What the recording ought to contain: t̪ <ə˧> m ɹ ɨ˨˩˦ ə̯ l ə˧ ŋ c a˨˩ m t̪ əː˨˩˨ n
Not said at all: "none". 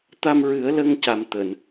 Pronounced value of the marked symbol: a˧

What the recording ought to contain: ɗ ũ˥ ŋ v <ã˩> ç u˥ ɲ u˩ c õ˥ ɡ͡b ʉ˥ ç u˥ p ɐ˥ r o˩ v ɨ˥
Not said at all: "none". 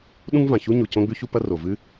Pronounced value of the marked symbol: ã˩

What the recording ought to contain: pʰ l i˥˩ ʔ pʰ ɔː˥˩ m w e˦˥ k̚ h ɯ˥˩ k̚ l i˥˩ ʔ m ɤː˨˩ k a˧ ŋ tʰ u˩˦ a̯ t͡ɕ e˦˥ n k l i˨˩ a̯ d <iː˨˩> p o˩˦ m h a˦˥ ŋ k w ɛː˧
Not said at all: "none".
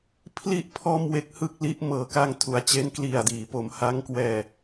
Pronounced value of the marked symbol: iː˩˦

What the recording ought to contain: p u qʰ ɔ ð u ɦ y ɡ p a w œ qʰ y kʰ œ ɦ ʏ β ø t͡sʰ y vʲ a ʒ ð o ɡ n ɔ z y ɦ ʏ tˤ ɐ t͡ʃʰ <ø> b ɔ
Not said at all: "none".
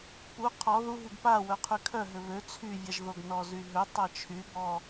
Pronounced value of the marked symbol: y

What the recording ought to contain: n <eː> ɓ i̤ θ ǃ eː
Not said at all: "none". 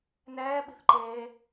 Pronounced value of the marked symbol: ɛː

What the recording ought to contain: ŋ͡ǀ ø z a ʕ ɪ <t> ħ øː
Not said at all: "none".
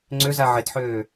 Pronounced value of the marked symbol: t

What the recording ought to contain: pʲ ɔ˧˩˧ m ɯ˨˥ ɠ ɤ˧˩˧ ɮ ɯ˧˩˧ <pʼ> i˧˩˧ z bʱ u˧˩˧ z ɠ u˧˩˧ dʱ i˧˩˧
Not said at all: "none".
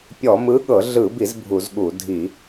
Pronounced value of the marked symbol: b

